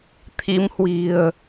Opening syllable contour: rising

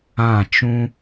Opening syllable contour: falling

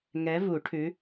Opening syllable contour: rising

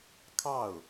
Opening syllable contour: falling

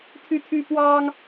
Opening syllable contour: high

